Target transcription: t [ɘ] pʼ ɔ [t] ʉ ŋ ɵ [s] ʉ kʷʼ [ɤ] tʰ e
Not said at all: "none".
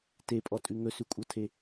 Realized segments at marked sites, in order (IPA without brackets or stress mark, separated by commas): e, tʼ, s, ɤ